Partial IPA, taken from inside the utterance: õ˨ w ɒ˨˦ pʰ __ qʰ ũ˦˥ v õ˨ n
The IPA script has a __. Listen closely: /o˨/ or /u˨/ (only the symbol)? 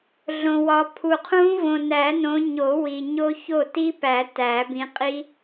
u˨